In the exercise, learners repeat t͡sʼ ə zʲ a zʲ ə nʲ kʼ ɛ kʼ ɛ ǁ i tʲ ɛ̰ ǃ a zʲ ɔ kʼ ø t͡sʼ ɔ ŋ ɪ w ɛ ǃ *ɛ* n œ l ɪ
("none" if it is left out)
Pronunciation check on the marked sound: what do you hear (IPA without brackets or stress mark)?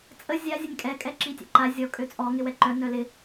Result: œ